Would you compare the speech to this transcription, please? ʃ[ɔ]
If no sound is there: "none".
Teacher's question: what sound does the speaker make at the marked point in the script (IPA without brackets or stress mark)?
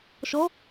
ɔ